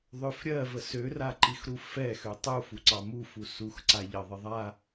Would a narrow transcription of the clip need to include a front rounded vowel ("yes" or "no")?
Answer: yes